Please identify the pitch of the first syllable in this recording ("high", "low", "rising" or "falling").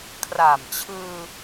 low